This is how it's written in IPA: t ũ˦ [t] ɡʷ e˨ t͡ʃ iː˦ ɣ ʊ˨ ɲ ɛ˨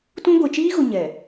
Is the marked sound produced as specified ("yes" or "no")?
no